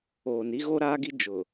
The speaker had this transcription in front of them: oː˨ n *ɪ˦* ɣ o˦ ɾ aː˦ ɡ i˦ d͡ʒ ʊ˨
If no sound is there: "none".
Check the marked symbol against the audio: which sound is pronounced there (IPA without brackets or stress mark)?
i˦